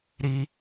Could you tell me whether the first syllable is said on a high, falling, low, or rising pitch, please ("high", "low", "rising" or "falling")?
high